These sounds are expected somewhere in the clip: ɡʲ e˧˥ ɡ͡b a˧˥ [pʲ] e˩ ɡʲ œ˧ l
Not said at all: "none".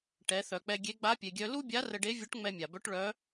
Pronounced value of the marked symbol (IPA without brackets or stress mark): pʲ